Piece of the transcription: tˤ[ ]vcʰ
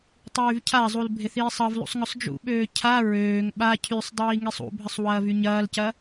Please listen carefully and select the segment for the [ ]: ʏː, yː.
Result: yː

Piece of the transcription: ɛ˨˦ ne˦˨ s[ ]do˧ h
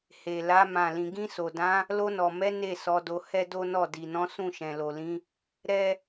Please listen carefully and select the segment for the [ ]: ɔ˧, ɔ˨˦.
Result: ɔ˨˦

